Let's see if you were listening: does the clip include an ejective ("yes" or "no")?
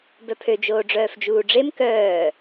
no